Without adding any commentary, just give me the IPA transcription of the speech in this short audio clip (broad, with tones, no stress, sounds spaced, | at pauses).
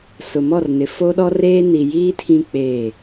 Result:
s ʊ˨ m ɔ˦˨ r n ɪ˨ f o˦ ɗ ɔ˦ r eː˦ n i˨ j iː˦ tʰ ĩ˦ k͡p eː˦˨